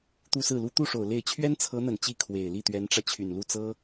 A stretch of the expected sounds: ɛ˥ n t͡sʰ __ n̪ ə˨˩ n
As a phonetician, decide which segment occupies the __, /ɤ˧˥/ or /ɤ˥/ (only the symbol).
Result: ɤ˧˥